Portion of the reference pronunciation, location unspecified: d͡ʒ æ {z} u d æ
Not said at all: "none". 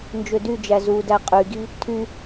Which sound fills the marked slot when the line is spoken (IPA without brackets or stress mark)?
z